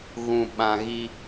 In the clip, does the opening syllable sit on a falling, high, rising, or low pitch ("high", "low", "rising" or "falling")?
low